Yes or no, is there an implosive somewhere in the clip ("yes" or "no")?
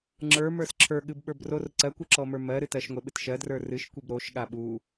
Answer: yes